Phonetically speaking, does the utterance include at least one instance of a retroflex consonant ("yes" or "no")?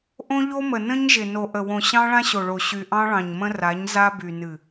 yes